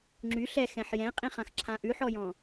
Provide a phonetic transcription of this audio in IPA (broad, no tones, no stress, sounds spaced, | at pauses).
ŋ͡ǁ y ɬ ɛ x ɛ̃ ħ j ɛ̃ qʼ ĩ χ ã x ǁʰ ã ʔ ʉ ħ ɔ j ɔ̃